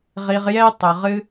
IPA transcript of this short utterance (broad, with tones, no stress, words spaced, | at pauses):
ʁi˨ʁjɛ˧ tˤə˨ ʁɨ˦